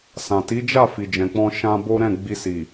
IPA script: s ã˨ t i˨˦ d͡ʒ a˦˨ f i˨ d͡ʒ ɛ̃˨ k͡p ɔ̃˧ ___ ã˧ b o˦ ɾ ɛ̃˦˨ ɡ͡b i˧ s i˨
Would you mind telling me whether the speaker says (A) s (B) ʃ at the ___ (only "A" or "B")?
B